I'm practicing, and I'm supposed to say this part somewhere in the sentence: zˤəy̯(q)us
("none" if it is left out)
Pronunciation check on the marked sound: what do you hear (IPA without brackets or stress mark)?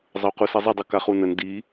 q